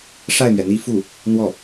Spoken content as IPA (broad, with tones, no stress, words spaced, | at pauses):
ʂa˥˩ɪ̯mɥɛ˩n̪i˥˧fu˥˩ | n̪wɔ˥˩